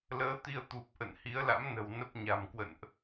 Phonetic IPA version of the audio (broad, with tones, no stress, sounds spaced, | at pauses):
l əː˨˦ t̪ i˧ ə̯ t̪ u˨˩ p̚ ʔ ə̰˧˨ n h i˨˦ ə̯ l a̰˧˥ m n ə̤˨˩ w n ə˦˥ p̚ ɲ a̤˨˩ m k w ə̰˧˨ n ʔ